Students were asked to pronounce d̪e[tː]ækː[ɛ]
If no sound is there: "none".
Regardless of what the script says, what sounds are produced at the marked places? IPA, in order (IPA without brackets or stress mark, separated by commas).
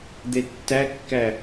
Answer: tː, æ